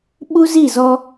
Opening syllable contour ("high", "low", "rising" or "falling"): high